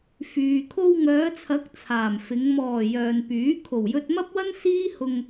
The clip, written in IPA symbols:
fyː˨ kʰo˧wŋœː˨˧t͡sʰɐ˨˥k̚ t͡sʰaː˨˩mfɪ˨˧ŋ mɔː˨˩ jœː˨npyː˨˥ kʰo˨˩wjɵ˧t̚mɐ˥p̚wɐ˥n siː˥hʊ˧ŋ

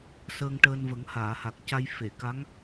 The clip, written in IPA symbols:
səː˧ŋʈəː˧nvə˨˩˦ŋ haː˨˩˨ha˨˩k̚ ca˧j fe˨˩˨ ka˧˥ŋ

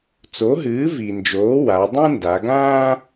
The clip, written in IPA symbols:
t͡so˩˥ɦɨː˩˥vi˩nd͡ʒoː˩˥ wa˩˧dˤũ˥nda˩˧ɡãː˥

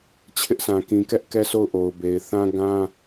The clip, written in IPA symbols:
t͡ɕʰɪ˦ʔsʰã˨ kĩ˨kɛ˦ʔ kɛ˦˨sʰo˦˨ʊ̯ʔo˨ʊ̯be˨ɪ̯ θã˦ ɡã˦

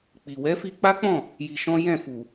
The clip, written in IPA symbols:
k͡pi˨ wɛ˨˦fi˧k͡pa˦k͡pɔ̃˦˨ | ji˧ʃɔ̃˦ jɛ̃˦˨fu˨

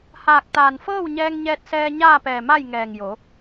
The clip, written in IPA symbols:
haː˧˩k̚t̪aː˧˩n fɤː˥˨wɲɛː˧ŋɲɛː˧t̚sɛː˧ ɲaː˥˨pɛː˧˩ma˥˨j ŋɛː˧˩ŋjo˩˧

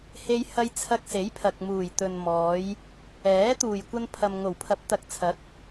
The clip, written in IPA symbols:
he˧jhɐ˧j t͡sʰɐ˧k̚se˨˥jpʰɐ˨k̚ muː˨˩jt̪ɵ˨nmɔː˨˧j | ɛː˨˥ t̪uː˨˩jkʷɐ˧npʰɐ˨m ŋo˨˩wpʰɐ˨˥p̚t̪ɐ˨˥k̚t͡sʰɐ˨˥k̚

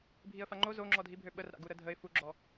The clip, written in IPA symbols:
bʱiə̯faŋ͡ǃo zoŋ͡ǁɔdʱibʱø ɓərɾa̰ɡu ɾədʱəɪ̯ fuɡ͡ǁɔ

